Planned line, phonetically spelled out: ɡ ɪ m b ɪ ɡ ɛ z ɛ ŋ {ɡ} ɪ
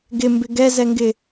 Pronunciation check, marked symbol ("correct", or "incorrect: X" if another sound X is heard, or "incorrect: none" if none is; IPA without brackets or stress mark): correct